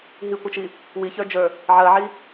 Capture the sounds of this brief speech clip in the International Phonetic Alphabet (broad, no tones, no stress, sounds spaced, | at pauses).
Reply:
ɦ i kʷ ʌ t͡ʃ i | w i ç ə˞ d͡ʒ ə˞ | ʕ ɜ ʕ i